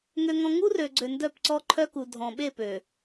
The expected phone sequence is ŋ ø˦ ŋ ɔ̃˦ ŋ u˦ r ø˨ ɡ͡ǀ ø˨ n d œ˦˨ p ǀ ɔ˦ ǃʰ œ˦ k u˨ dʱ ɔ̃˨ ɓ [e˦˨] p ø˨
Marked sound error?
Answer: no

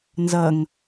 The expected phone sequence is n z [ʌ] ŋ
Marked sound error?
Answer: no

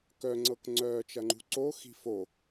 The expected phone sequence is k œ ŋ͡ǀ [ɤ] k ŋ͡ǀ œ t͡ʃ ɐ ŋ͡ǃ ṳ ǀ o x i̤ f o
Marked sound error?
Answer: no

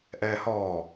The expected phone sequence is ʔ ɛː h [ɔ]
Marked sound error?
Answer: yes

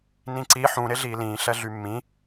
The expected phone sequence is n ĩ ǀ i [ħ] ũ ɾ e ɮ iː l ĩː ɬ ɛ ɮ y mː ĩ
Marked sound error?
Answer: no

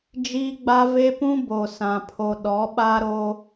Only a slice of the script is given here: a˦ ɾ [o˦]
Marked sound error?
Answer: no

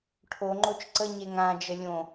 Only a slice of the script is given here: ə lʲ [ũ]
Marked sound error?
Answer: yes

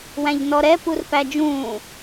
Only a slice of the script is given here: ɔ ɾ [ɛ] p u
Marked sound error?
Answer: no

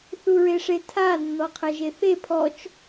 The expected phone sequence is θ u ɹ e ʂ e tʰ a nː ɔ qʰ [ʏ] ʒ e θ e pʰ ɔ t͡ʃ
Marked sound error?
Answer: yes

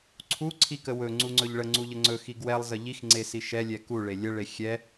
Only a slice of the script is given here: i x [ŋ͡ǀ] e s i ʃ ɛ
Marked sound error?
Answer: no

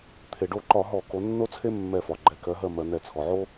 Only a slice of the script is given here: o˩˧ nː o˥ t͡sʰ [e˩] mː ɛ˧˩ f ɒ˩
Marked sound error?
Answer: yes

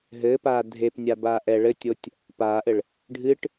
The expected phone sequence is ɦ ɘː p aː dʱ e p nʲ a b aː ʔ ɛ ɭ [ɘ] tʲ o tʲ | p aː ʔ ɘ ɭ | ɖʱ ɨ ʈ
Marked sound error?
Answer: no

